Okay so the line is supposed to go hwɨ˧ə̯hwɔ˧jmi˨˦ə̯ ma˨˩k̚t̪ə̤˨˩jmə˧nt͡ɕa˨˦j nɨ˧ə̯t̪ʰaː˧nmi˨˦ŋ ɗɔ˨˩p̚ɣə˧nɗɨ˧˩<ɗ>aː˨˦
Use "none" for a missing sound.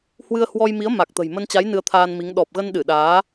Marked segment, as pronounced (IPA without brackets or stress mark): ɗ